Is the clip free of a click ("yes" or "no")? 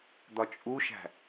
yes